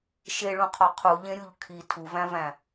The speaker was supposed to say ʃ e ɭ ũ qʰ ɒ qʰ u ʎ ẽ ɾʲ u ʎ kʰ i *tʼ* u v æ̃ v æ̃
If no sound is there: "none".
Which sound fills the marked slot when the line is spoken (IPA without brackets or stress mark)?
tʰ